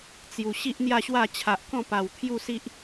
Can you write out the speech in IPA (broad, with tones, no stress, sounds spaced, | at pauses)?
t͡s j u˨˩ ɕ i˦ ʔ n̪ j a˥˧ ɕ w a˥˧ t͡ɕʰ a˨ ʔ k ɔ̃˥˧ p a˨˩ w t̪ʰ j u˥˧ s i˦ ʔ